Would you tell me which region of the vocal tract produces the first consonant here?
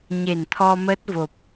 palate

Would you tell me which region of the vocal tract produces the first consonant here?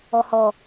throat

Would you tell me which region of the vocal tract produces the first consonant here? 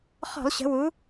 uvula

